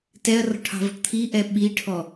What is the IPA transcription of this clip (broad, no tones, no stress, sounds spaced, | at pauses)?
t ɛ ɐ̯ r ɔ̤ ʈʰ ɑ̤ v ɔ̤ ʈ t̪ʰ i ʔ ɛ ɓ i ʈʰ ɔ